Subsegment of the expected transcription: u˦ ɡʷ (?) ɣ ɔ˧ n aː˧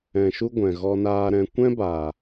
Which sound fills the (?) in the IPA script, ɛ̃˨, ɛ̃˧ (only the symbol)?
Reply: ɛ̃˨